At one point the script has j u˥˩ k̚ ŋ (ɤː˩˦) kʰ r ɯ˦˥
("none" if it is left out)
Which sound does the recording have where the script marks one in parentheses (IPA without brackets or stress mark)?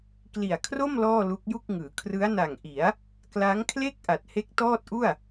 ɯː˩˦